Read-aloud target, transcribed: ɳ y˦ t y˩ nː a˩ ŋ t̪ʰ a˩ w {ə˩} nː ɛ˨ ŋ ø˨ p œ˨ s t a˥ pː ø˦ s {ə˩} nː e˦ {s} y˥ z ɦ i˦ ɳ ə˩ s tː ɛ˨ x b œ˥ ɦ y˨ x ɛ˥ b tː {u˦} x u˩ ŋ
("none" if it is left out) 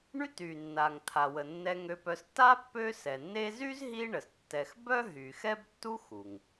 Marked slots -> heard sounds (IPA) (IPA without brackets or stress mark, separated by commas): ə˩, ɛ˩, z, u˦